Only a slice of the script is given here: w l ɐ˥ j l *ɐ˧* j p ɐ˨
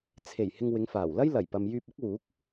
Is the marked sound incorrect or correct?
incorrect